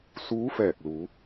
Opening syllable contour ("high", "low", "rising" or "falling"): rising